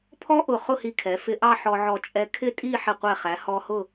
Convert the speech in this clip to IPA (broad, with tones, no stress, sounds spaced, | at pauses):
pʰ ɔ˥ ʔ ʊ˧˩ χ ʊ˥˧ h i˧ kʰ ɛ˩˧ f ɪ˧ ʔ ɑ˥˧ ħ ɔ˧ ʕ ɔ˧˩ t͡ʃʼ ɛ˧ kʰ ɪ˥˧ tʼ i˥˧ ħ ɪ˧˩ qʷ ɛ˧˩ χ æ˩˧ h ɔ˧ h ʊ˥˧